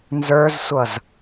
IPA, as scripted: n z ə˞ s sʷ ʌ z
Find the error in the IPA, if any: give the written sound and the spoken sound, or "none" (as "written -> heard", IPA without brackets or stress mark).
s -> z